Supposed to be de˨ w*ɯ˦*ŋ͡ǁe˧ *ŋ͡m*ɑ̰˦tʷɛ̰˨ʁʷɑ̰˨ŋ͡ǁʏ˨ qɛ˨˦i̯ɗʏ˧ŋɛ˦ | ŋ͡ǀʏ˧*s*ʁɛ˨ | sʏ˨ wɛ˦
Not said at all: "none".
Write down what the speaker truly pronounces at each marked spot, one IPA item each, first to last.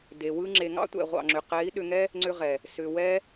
ɯ˦, ŋ, none

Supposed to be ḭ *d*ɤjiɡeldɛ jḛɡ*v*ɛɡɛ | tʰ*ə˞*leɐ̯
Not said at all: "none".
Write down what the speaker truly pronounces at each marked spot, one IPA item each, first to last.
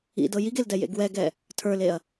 d, w, ə˞

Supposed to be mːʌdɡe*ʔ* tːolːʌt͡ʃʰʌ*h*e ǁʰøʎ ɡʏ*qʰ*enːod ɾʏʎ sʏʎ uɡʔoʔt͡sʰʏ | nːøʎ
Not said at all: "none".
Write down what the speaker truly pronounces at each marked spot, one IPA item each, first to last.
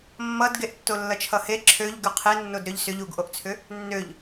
ʔ, h, qʰ

